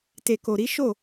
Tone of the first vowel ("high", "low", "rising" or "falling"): low